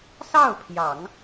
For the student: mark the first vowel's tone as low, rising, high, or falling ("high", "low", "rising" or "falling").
falling